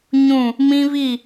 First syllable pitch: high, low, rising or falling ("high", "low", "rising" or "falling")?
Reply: falling